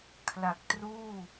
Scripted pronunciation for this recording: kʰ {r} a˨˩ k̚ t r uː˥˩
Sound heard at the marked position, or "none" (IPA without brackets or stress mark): l